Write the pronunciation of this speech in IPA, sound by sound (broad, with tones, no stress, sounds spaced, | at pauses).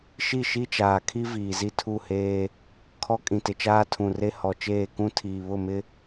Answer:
ʃ i˦˨ ʃ i˦ t͡ʃ aː˨ kʰ i˦ v iː˨ z i˦ tʰ u˦˨ h eː˦ | kʰ ɔ˦ kʼ ĩ˨ t ɪ˨ t͡ʃ aː˦ tʰ ũ˨ r e˦ h ɔ˨ t͡ʃ eː˦˨ k ũ˦ tʰ iː˨ β ʊ˦˨ m ɪ˦